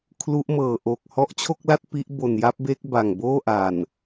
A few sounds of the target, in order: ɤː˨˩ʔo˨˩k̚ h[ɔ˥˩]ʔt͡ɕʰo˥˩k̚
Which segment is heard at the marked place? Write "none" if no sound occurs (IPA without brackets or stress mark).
ɔ˦˥